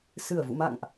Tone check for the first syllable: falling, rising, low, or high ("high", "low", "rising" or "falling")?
low